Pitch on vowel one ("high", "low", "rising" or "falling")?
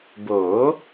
rising